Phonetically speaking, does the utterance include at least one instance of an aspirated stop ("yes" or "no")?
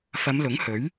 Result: no